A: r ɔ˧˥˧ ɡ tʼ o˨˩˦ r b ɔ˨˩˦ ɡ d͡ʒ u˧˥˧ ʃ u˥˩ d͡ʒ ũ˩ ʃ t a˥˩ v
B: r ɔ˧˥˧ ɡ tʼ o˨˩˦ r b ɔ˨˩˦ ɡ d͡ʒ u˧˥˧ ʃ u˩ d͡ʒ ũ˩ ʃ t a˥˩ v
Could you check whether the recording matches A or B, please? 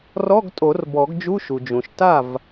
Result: B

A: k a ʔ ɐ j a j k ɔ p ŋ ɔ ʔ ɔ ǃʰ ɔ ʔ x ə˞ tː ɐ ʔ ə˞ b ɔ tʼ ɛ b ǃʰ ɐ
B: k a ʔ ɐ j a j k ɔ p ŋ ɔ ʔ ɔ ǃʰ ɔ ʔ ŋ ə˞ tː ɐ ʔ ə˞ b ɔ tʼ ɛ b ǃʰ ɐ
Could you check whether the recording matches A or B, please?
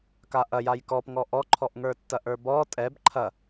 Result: B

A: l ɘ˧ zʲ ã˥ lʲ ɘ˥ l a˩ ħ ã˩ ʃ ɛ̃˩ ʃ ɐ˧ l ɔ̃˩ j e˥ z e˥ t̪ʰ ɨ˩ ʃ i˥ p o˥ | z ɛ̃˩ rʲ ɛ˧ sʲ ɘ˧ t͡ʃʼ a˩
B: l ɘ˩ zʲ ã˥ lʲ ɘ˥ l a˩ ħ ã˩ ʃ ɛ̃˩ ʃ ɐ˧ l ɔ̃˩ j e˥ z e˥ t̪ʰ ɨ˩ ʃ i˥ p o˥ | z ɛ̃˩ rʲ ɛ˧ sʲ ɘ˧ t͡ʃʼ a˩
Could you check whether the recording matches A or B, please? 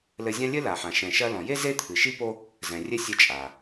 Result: A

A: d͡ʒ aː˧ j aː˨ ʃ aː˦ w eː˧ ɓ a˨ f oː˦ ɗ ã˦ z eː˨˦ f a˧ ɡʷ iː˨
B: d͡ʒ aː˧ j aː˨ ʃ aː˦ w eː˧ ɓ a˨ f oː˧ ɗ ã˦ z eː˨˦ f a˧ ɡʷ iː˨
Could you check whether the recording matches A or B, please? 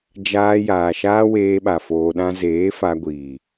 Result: B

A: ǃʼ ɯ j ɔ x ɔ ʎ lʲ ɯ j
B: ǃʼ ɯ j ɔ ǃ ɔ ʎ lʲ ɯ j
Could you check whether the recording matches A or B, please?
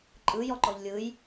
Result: B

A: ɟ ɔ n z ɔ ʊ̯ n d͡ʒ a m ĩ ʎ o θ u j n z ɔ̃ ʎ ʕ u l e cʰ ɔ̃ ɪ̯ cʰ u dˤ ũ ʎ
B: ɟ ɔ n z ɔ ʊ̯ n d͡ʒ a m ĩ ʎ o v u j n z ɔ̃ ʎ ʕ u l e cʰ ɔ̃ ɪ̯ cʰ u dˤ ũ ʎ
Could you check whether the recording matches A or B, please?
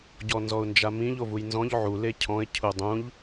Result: B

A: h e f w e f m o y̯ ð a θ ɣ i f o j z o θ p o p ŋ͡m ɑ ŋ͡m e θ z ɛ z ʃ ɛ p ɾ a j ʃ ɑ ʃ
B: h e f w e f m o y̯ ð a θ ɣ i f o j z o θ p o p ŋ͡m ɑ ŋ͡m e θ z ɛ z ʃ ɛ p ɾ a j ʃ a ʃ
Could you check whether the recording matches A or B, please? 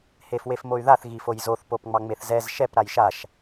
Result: B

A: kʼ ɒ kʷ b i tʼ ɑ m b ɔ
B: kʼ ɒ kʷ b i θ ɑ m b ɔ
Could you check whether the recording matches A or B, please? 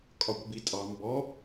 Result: A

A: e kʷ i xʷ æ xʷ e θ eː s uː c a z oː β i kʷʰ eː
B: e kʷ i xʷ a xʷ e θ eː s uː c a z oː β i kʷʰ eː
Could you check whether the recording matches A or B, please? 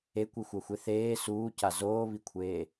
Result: B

